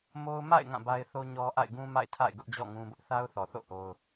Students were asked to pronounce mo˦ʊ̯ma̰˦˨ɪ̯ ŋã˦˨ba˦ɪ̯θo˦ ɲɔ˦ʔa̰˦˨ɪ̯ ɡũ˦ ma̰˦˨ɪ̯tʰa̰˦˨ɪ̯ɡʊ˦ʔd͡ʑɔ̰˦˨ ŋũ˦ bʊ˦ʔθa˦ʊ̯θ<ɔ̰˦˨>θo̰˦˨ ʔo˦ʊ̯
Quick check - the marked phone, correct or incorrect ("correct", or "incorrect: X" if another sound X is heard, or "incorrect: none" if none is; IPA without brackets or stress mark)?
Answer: incorrect: ɔ˨